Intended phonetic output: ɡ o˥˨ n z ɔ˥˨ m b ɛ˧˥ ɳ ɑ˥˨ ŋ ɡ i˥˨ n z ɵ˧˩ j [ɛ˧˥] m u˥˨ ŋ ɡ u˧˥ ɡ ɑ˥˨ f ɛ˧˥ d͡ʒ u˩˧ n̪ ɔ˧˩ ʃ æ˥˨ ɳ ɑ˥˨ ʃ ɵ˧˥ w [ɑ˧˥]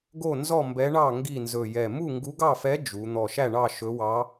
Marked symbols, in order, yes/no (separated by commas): no, yes